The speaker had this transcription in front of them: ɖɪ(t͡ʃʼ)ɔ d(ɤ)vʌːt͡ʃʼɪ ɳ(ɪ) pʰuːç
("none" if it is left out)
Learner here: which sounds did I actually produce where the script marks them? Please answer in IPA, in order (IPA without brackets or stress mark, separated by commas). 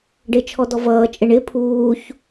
t͡ʃʰ, ɔ, ɪ